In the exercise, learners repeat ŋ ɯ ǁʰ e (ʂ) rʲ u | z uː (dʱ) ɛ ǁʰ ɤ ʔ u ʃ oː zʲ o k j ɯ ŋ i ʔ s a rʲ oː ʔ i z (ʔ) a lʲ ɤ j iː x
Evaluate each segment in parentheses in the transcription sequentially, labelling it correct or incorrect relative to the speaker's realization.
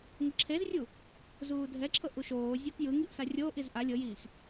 incorrect, correct, correct

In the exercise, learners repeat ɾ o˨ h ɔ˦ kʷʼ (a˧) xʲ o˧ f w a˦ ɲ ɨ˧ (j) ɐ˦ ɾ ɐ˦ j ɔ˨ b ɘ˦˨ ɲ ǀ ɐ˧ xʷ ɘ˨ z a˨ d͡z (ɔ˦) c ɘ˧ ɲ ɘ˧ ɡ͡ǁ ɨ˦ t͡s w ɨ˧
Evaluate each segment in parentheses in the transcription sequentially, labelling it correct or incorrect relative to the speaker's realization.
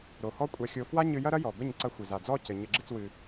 correct, correct, correct

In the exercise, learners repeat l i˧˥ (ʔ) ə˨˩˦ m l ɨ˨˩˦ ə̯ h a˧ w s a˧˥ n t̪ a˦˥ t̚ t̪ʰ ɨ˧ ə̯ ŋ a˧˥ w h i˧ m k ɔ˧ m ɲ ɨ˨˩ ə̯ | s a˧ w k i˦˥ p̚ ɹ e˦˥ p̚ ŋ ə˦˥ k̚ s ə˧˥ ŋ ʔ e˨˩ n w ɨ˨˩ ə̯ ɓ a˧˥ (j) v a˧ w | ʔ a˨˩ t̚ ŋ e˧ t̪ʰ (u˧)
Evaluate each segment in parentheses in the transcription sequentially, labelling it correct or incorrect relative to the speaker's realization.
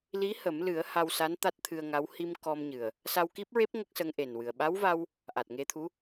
incorrect, incorrect, incorrect

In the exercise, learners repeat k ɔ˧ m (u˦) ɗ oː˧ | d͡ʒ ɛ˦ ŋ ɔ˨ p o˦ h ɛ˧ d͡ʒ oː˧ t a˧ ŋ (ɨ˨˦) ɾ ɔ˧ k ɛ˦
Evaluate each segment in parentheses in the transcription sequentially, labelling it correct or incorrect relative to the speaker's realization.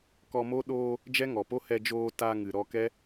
incorrect, incorrect

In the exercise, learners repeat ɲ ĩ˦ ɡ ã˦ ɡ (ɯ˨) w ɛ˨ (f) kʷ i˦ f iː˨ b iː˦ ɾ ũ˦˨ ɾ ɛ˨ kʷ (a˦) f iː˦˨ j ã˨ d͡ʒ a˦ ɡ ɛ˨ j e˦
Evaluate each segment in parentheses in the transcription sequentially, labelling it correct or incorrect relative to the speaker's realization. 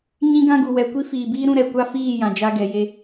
incorrect, incorrect, correct

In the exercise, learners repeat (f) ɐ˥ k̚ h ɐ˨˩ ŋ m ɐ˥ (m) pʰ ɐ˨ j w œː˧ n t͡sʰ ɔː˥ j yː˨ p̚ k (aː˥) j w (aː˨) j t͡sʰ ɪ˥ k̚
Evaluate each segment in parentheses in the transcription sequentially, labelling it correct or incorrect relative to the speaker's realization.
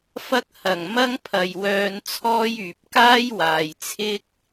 correct, incorrect, correct, correct

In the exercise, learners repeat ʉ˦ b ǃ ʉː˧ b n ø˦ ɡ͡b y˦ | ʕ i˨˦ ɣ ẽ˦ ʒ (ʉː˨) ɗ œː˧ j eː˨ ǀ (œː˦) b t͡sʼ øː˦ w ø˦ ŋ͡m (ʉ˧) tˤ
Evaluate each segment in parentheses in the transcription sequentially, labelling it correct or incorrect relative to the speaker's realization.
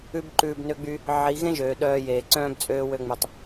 incorrect, incorrect, correct

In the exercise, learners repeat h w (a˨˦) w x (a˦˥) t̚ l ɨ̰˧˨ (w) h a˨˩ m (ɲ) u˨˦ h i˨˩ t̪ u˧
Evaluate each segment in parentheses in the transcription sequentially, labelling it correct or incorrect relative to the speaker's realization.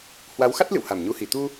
correct, correct, correct, correct

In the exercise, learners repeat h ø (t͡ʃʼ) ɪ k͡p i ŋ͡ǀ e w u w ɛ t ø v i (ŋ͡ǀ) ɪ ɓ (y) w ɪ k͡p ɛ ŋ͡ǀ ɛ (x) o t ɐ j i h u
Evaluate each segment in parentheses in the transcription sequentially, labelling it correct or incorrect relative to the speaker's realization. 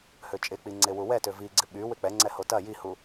correct, incorrect, correct, incorrect

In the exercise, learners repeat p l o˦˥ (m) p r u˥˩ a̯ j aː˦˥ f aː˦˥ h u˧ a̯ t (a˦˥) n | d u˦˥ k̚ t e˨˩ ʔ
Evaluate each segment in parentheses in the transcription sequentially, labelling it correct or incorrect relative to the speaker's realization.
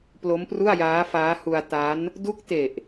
correct, correct

